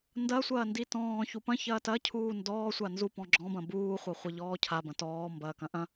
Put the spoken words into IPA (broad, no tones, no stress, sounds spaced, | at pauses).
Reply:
n d ɐ sʷ ɐː n d i t ɔ̃ː ç u p ɐ̃ ç ɐː t ɐ cʰ uː n d ɔː sʷ a n z u p ɔ̃ ɡ͡ǁ ɔ̃ b ɐ̃ b uː χʷ ɐ χʷ ɐ ʎ ɔː cʰ a b ɐ̃ t ɔː m b ɐː k ɐ̃ ʔ ɐ̃